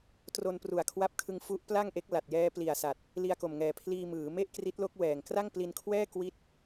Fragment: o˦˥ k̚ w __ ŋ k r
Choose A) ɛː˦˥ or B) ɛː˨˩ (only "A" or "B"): B